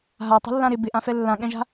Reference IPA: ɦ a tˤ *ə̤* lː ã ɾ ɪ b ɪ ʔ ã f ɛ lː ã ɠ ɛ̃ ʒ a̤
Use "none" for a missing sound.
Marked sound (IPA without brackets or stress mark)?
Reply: ə̤